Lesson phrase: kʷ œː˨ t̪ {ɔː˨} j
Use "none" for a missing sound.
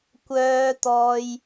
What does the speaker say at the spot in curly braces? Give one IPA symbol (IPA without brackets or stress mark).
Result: ɔː˨